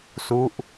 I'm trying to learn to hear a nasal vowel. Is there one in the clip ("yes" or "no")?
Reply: no